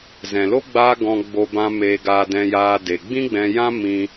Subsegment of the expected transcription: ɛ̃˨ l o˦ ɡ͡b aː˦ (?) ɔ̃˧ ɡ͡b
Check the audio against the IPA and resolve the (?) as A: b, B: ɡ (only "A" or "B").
B